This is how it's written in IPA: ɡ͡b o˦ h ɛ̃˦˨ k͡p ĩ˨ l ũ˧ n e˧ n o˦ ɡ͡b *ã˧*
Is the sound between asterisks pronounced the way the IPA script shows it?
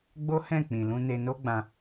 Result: yes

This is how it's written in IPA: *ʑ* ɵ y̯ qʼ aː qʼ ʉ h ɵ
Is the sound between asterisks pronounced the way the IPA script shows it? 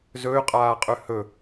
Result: no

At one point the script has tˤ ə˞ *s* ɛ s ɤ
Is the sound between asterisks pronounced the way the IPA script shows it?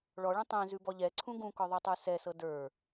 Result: yes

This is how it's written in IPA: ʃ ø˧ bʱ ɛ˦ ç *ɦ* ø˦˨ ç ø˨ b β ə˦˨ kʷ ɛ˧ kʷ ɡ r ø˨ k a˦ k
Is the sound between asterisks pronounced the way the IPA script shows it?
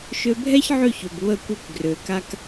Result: no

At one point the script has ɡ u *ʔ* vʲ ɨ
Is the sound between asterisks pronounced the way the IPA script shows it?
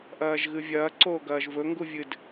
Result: no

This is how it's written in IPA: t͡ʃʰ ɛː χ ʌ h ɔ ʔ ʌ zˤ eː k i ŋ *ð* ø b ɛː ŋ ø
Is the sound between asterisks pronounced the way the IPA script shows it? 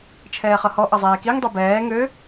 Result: no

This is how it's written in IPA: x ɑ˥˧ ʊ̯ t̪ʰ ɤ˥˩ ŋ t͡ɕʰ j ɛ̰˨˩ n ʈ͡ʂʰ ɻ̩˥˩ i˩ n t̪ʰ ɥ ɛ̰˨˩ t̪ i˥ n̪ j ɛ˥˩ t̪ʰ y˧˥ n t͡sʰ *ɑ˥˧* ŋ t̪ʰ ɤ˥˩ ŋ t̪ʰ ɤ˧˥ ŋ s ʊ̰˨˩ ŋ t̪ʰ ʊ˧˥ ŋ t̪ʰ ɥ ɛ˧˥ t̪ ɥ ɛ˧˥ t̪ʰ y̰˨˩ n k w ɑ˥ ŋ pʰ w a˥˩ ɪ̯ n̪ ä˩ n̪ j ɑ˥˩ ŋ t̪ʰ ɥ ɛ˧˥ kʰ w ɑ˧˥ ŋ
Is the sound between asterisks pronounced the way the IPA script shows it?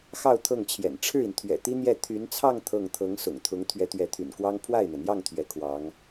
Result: yes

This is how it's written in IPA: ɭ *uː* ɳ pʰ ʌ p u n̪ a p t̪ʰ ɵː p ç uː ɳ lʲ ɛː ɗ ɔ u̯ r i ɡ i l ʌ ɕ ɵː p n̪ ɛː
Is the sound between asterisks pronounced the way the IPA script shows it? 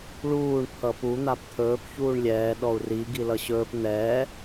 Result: yes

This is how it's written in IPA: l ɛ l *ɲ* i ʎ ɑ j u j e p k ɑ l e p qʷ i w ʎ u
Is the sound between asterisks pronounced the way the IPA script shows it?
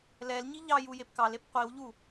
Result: yes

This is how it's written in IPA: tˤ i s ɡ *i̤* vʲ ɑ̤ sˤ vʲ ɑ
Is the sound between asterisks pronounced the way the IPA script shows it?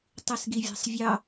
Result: no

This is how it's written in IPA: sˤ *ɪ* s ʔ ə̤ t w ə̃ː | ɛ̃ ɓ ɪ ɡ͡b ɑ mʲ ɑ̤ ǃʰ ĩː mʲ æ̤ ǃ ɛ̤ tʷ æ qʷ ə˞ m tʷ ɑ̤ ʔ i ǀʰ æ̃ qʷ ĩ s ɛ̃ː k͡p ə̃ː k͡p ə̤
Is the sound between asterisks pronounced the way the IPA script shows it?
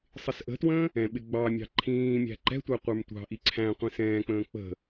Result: yes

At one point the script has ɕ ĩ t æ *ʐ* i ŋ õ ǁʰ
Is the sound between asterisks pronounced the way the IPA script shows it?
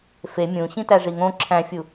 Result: yes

